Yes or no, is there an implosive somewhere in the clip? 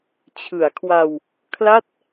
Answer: no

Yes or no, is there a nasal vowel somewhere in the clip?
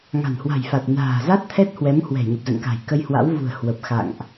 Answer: no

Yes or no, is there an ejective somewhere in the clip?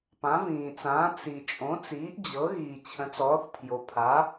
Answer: yes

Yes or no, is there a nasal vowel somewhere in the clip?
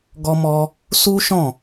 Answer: yes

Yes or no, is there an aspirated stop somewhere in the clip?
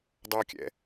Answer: no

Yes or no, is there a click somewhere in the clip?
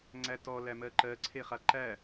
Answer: yes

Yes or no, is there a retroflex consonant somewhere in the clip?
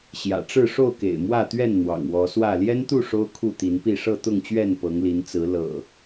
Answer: yes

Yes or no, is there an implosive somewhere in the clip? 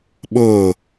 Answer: yes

